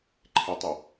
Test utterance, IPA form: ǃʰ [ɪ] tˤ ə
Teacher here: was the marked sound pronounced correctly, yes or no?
yes